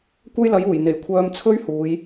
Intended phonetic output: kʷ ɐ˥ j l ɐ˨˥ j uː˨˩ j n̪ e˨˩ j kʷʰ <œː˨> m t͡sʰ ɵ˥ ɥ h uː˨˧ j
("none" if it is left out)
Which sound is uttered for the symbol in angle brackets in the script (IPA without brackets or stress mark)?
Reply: œː˧